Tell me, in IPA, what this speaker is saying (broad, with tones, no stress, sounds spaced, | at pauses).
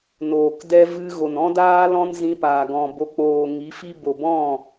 n oː˨ k d ɛ˧ v ɨ˧ ɣ o˨ n ɔ̃˦ d aː˦ l ɔ̃˦ n z ĩ˧ p aː˨ ɡ ɔ̃˨ b o˨ k͡p oː˨ ŋ i˨˦ f i˦ b o˨ b ɔ̃˦˨